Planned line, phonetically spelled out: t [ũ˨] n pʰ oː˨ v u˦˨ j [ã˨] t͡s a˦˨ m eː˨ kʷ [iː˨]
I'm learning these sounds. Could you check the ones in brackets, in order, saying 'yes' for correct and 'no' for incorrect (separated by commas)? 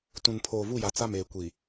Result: yes, no, no